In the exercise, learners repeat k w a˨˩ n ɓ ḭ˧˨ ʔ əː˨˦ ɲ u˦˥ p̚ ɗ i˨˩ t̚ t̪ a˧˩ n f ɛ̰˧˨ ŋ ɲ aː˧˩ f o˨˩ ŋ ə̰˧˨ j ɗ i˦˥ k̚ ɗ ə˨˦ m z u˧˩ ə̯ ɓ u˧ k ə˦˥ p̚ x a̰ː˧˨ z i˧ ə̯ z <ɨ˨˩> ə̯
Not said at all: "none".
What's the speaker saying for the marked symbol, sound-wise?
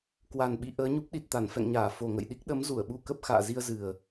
ɨ˨˩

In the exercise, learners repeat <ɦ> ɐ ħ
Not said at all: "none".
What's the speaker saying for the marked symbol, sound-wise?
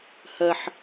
h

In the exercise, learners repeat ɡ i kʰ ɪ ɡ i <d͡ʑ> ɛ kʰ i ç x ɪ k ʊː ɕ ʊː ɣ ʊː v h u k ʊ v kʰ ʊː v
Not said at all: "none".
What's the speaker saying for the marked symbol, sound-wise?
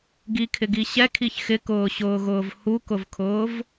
ɕ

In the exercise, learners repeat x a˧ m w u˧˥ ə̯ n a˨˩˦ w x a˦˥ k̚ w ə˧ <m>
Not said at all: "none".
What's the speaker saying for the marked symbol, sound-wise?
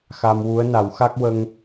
ŋ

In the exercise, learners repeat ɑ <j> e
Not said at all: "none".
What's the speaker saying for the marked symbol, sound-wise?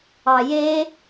j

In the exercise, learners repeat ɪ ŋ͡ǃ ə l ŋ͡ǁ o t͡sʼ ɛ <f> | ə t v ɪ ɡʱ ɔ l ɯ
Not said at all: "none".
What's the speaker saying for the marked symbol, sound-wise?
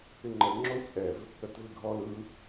v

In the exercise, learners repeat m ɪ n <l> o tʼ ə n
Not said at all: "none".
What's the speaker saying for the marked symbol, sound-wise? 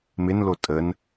l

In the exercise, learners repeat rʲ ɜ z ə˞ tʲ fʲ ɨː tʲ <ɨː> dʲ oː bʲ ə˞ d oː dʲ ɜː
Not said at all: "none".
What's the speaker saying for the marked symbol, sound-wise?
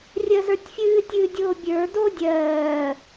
ɨː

